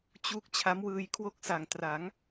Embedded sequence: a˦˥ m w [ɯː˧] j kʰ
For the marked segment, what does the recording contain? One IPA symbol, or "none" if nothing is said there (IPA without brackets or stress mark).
ɯː˧